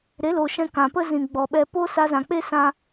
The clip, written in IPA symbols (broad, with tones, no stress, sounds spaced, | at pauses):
ɾ e˨˦ l o˨ ʃ ɛ̃˧ k ã˨ p ə˦ z ĩ˨ ɡ͡b ɔ˨ ɓ ɛ˧ p o˦ s a˧ z ã˨ k͡p e˦ s ã˦